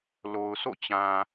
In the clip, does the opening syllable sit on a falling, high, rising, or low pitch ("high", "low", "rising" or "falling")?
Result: low